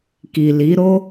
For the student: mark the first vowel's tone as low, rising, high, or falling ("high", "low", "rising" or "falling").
low